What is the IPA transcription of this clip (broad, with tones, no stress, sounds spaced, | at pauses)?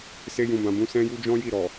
s e˧ j ũ˨ b ã˨ b ũ˨˦ s ɛ̃˦ j u˦ d͡ʒ ɔ̃˦ j i˦˨ ɾ ɔ˨